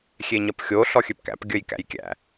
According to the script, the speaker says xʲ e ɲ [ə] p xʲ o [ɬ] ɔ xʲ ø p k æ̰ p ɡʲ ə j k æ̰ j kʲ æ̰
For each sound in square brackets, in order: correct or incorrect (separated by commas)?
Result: incorrect, correct